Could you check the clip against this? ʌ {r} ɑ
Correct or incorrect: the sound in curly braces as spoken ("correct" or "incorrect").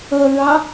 incorrect